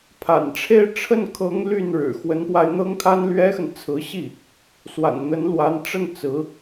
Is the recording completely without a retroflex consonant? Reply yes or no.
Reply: no